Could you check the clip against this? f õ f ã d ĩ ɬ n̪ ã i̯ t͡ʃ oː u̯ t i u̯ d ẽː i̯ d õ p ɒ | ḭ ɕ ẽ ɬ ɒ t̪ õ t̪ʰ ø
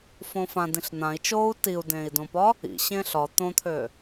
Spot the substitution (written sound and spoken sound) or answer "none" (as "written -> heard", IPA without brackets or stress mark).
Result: none